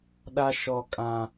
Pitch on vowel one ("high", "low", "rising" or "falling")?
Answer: high